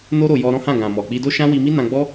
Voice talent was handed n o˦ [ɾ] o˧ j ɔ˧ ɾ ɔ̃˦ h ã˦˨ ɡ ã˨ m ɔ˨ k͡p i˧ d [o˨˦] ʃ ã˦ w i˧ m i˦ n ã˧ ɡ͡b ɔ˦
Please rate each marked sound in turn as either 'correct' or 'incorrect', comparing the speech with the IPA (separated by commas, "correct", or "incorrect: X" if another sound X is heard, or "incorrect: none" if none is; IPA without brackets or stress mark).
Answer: correct, incorrect: o˦